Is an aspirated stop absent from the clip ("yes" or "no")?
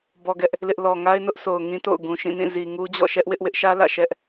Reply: yes